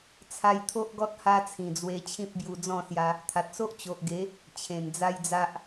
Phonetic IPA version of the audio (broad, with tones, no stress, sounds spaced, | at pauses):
t͡sʰ a˧ j t̪ʰ o˦ ʔ ɡ ɔ˦ t̚ h a˦ t͡sʰ ĩ˨˩ d͡z w e˧ t͡ɕʰ ĩ˦ p̚ b j u˧ d͡z ɔ̃˥˧ s j a˧ | t̪ʰ a˨ t̚ s o˦ ʔ t͡ɕ o˨ ʔ ɡ e˨˦ | t͡ɕʰ ẽ˨˩ n d͡z a˦ j d͡z a˦ ʔ